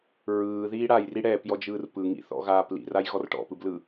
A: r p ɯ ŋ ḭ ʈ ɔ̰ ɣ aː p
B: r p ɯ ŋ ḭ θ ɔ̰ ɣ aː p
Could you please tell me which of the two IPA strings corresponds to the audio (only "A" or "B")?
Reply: B